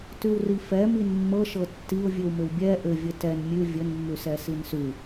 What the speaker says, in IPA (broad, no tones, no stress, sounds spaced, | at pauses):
t ʉ w r i f ɛ m i n mː ɤ ʃ ɤ tː i ʊ̯ vʲ ʉ w m ɘ w bʲ ɛ ʔ ɘ vʲ ɘ t ɛ n mʲ ʉ vʲ ɘ n mː ʉ s ɛ s i n s ʉ